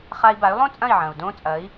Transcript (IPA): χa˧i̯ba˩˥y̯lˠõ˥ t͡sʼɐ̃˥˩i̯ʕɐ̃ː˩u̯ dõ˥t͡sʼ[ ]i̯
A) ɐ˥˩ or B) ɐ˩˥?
B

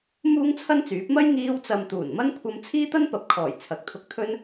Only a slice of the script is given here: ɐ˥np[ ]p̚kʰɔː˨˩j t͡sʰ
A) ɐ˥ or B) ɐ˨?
B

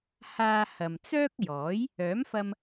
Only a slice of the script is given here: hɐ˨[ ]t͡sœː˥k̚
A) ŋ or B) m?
B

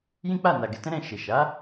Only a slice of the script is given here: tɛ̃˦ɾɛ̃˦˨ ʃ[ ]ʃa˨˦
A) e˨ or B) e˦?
A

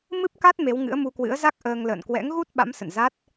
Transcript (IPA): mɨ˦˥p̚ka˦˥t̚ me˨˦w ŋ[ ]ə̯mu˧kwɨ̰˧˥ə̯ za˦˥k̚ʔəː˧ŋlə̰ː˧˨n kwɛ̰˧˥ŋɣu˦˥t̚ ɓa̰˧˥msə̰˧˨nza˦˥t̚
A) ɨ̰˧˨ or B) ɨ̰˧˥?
B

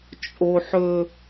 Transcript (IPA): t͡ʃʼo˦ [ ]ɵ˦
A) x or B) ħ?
B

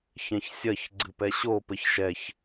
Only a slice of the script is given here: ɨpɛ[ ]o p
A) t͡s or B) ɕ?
B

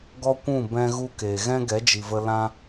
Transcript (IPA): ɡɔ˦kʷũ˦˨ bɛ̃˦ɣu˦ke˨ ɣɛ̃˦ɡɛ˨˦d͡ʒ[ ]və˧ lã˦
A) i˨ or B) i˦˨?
A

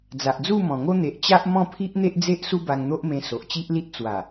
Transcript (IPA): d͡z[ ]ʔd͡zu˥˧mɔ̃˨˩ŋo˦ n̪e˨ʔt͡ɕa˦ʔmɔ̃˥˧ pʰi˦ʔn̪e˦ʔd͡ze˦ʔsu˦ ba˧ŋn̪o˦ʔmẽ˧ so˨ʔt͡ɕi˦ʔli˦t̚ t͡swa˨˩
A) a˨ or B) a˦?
A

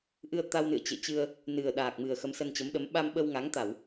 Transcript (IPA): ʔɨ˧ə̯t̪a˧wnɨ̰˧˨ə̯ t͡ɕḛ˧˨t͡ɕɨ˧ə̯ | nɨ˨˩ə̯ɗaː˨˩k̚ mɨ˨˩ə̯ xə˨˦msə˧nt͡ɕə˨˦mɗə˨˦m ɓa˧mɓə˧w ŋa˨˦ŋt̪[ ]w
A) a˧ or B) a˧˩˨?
B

